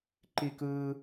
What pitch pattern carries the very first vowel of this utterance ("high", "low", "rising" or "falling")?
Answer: high